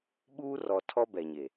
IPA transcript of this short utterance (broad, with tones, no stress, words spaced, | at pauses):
ɓuː˦rɔ˨ tʰɔ˦bɛ˨ɲe˨